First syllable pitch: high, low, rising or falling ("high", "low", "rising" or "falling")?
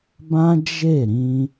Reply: high